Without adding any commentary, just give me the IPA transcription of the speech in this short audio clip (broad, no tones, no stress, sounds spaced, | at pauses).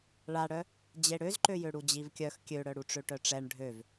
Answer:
ɭ a ɽ œ | d͡ʑ e ɽ ø z ǃ ø j ø ɽ u d͡ʑ i v kʲ œ x kʲ ø ɽ œ ɽ u ʈ͡ʂ ø ʈ œ ʈ͡ʂ ɛ ɳ ɖʱ ø v